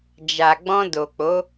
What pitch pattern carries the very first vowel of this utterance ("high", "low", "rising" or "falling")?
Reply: low